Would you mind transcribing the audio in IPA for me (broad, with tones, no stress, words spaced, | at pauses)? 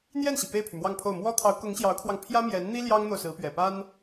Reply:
n̪jɛ˥˩nɕi˩ pe˥˩ɪ̯pʰy˩mwɑ˥˧ŋpʰo˥˩ʊ̯ mwɔ˥ t̪ʰɑ˧˥ʊ̯kʊ˧˥ŋ ɕjɑ˧˥ʊ̯kʰwɑ˧ŋ pʰjä˥mjɛ˧˥nn̪i˥ ljɑ˥ŋn̪o˨ʊ̯sɹ̩˧˥ pɥɛ˨˩pa˥n